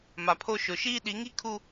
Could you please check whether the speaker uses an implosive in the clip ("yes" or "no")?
yes